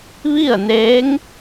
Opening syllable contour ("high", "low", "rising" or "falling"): falling